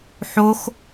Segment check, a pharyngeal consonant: present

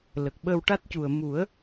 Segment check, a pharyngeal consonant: absent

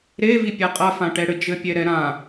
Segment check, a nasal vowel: present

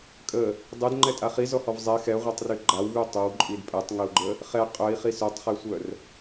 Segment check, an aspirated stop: absent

